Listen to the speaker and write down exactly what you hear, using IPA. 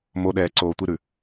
m o ɗ ɛː ǀ oː tʷ i ɾ ʉ

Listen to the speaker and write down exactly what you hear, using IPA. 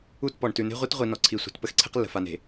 u˦˨ t p ɔ˨ ɳ t ʉ˨ n e̤˦ ʁʷ i˦ t ʁʷ i˨ n ɔ˨ ǀʰ i˨ sʷ a̤˨ t p ə˦ x ǀʰ e̤˦ q lː ə̤˨ f a˨ n e̤˨

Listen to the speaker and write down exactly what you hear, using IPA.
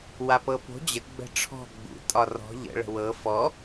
w a p ɤ p o̤ d͡ʑ ə ɡ͡b ə̤ ʈ͡ʂʰ ɔ̤ ɡ͡b ṵ tʼ ɒ r ɔ̤ ʎ ə̰ ɭ ə̤ w ɤ f ɔ

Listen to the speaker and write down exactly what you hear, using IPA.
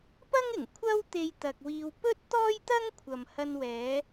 p ɐ˥ ŋ ɪ˨˩ ŋ kʷʰ ɐ˥ w t̪ e˧ j t̪ ɐ˨ k̚ w iː˧ w p ɵ˥ t̚ t̪ ɔː˥ j t̪ ɐ˥ ŋ kʷʰ ɐ˨ m h ɐ˧ n w ɛː˨˧

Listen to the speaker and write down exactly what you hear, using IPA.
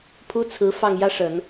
pʰ u˥ t͡sʰ ɹ̩˧˥ f ɑ˥˩ ŋ j ä˥ ʂ ə˨˩˦ n

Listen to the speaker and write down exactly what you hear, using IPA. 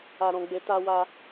a˧ ɾ ɔ̃˧ ɡ͡b e˧ t a˧ w a˧

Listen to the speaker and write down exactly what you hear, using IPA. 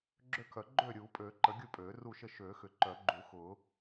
ɡ͡ǁ ø˥˨ kʰ œ˨˩˦ ɡ͡ǃ øː˥˨ ɾʲ uː˨˩˦ pʼ øː˨˩˦ ǃ ə˨˩˦ ɡʲ u˥˨ pʼ øː˨˩˦ r u˥˨ ʃ ə˥˨ ʃ øː˨˩˦ x ʏ˨˩˦ ǃ œ˨˩˦ ɡ͡ǃ u˨˩˦ x ʊː˨˩˦

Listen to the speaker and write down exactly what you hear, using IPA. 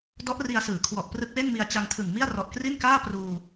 d ɔ˦˥ ʔ r i˧ a̯ s ɯː˩˦ kʰ w ɔ˨˩ ʔ p r ɯ˦˥ k̚ w e˥˩ n m i˧ a̯ t͡ɕ a˧ ŋ tʰ ɯ˨˩ ŋ m i˥˩ a̯ r ɔ˨˩ ʔ k r i˥˩ n k aː˥˩ p r uː˧

